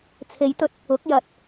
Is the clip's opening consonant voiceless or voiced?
voiceless